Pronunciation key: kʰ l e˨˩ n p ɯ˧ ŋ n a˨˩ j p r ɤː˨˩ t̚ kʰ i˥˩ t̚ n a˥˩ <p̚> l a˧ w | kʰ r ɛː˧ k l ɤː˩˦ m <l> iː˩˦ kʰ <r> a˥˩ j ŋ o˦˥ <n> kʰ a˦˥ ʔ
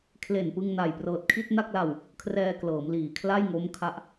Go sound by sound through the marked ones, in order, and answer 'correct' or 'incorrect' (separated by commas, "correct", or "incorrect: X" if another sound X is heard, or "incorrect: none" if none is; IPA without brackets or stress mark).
incorrect: k̚, correct, incorrect: l, incorrect: m